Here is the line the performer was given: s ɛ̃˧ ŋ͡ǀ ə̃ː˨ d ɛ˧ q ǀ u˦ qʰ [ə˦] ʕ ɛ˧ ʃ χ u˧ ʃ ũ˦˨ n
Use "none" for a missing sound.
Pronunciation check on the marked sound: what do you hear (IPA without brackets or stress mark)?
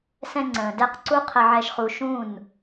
ə˧